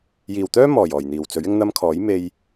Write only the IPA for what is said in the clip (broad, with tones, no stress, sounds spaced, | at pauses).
j iː˨ w t̪ œː˥ m ɔː˨˩ j ɔː˨˩ j n̪ iː˨˩ w t͡s ɵ˨˥ ɥ ɪ˧ ŋ n̪ ɐ˧ m kʰ ɔː˨˥ j m e˧ j